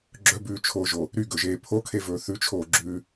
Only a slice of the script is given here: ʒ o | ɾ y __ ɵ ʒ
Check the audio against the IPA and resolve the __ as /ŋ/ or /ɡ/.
ɡ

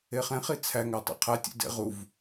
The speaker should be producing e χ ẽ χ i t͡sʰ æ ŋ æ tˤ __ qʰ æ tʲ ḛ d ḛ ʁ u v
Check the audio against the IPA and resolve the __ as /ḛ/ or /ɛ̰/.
ḛ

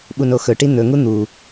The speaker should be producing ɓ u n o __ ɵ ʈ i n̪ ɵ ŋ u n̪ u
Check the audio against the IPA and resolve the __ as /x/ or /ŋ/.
x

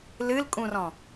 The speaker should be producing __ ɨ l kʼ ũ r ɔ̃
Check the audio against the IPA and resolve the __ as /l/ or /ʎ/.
l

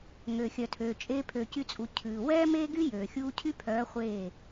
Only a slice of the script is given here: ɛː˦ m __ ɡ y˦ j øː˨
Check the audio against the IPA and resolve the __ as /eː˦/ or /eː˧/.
eː˦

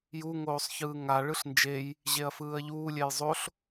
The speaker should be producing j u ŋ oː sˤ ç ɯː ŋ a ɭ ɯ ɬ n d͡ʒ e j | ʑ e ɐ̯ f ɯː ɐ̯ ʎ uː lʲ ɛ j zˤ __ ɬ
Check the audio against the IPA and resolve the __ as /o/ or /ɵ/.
o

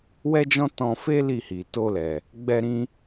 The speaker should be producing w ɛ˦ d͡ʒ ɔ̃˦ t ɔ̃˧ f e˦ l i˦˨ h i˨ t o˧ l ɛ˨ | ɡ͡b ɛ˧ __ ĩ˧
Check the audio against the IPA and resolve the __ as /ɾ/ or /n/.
ɾ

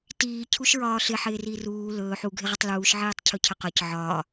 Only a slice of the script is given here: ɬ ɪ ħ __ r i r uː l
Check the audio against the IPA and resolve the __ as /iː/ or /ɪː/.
ɪː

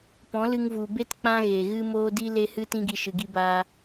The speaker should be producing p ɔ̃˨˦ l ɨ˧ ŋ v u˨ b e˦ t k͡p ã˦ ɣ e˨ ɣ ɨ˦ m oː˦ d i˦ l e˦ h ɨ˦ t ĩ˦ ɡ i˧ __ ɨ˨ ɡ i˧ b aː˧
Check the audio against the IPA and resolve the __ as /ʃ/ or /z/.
ʃ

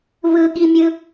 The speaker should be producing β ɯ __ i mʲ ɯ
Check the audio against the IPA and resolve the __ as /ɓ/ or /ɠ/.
ɠ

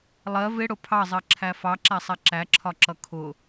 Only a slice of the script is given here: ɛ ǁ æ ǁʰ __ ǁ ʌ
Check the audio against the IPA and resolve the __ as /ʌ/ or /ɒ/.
ɒ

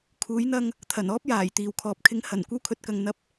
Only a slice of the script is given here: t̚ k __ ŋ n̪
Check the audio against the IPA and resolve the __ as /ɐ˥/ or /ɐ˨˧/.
ɐ˨˧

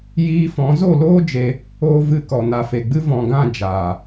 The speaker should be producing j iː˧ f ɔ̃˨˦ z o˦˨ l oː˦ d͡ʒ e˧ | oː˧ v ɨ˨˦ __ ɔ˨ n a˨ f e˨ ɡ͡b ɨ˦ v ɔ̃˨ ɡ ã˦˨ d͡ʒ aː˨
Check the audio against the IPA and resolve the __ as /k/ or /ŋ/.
k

